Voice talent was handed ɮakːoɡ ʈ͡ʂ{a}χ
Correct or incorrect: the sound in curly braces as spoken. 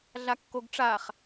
correct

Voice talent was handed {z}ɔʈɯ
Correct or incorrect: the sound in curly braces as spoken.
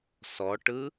incorrect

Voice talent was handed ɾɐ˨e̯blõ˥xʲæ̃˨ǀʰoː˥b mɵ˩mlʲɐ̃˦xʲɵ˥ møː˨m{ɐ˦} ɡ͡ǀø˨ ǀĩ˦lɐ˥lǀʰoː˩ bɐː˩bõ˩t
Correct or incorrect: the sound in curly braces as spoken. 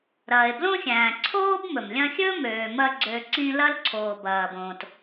correct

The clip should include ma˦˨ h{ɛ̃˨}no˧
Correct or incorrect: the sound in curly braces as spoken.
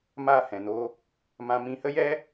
correct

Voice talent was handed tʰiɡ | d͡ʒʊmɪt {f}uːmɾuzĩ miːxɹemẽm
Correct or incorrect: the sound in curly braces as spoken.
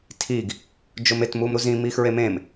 incorrect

